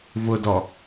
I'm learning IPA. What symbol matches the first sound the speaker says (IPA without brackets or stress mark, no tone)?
v